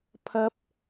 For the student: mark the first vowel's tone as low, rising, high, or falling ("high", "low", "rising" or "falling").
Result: high